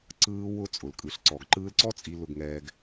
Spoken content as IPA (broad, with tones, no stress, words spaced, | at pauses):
ǀɯː˧wʊ˧ t͡sʼʊ˩lkʼɯ˩ɬǀɔ˩ɡ ǃɯː˧lǀɔ˥ t͡sʼi˧lʊ˧ɡŋɛː˧ɡ